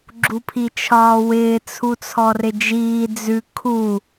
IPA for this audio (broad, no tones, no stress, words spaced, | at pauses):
ɡ͡ǁupʰit͡ʃʰɒːwɪː t͡sʰut͡sʰɔrɪd͡ʒiː d͡zʉ kʰu